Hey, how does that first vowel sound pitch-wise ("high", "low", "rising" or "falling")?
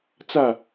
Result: falling